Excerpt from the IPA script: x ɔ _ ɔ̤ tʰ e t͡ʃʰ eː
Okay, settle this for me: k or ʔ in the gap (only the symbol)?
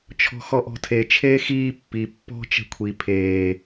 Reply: ʔ